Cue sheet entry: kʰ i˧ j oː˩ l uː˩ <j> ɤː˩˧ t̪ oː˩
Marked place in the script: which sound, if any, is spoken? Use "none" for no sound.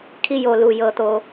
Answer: j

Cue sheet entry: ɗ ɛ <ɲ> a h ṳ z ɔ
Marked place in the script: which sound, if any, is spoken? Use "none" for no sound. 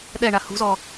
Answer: ɳ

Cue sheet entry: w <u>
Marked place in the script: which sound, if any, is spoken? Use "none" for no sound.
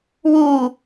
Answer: u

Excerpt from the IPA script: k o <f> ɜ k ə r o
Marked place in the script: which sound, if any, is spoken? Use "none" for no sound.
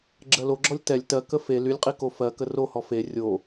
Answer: f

